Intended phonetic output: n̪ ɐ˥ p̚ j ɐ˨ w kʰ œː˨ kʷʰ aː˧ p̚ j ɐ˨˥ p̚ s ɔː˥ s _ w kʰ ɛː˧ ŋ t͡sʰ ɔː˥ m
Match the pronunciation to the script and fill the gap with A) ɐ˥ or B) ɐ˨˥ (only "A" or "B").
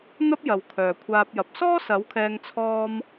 B